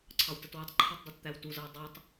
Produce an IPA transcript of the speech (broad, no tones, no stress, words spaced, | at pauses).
ǀʰɑwtətwətˤǃʰɛtˤ dˤɑtt̪æwtuzʌw dˤutˤ